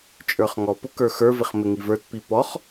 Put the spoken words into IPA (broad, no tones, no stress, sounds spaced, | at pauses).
t͡ʃʼ ə˞ χ ŋ ɔ p ʊ k ə˞ x ə˞ v ɪ χ m ɪ ŋ i v ə˞ t p i p ɔ χ